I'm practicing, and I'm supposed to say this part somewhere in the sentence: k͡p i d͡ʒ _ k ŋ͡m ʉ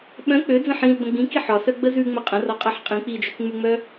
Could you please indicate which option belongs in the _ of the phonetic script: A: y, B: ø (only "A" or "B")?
B